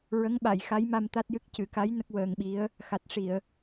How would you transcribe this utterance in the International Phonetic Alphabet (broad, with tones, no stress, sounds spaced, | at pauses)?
ɹ ə˧˥ ŋ ɓ a˨˩˨ j x a˧˥ j m a˧ m t̪ a˦˥ t̚ j ɨ˦˥ k̚ c ɨ˨˩˦ k a˧˥ j n ə˦˥ k̚ w əː˧ ŋ ɓ i˧˥ ə̯ | x a˨˩ t̚ ʂ i˨˩˨ ə̯